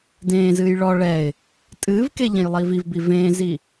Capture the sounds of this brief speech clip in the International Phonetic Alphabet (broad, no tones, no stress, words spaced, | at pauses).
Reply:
dẽːzɨːj ɭɔ ɭɛɪ̯ | tʼɨːvke ʎẽjlˠiːvivbi vẽːzi